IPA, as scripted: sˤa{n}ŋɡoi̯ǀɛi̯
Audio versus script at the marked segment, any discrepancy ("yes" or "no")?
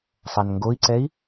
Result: no